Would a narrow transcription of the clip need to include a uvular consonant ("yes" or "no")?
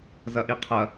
yes